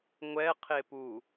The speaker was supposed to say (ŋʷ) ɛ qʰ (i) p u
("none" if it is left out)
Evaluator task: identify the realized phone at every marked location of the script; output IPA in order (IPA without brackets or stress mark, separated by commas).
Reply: ŋʷ, e